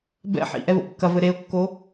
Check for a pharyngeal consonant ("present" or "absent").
present